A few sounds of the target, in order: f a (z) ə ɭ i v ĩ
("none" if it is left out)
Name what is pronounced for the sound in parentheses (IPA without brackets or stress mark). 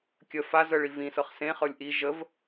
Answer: z